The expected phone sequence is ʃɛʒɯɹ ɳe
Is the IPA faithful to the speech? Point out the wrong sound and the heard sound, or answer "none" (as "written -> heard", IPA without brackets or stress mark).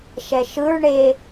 ʒ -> ʃ